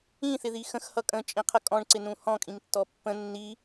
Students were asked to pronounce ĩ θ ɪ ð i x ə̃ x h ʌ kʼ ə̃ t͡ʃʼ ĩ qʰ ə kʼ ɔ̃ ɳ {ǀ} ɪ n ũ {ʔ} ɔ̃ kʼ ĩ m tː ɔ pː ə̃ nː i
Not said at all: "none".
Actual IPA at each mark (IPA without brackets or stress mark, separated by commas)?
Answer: ǀ, h